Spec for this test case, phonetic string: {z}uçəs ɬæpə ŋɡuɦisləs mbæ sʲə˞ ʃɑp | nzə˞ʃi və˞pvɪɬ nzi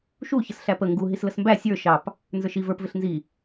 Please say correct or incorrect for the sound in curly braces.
incorrect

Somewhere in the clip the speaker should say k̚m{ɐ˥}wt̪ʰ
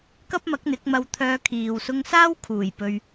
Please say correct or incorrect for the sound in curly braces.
incorrect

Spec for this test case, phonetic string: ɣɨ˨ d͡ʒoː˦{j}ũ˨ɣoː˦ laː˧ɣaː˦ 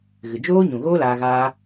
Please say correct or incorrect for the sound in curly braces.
incorrect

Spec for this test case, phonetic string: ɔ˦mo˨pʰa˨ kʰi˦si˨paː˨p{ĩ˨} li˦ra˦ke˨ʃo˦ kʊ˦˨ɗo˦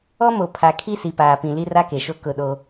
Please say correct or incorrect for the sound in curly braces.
correct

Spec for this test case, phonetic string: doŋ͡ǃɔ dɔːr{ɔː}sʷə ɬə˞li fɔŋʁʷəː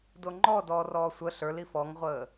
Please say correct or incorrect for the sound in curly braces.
correct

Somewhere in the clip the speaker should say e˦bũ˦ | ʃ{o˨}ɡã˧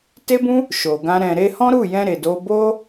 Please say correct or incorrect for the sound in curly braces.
correct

